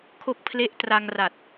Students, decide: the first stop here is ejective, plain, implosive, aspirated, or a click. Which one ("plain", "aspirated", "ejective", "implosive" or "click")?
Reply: aspirated